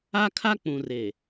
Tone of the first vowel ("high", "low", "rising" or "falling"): high